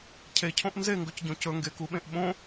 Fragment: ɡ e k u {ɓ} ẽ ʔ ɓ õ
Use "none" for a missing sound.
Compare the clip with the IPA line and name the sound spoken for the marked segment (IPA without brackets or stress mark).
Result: ɓ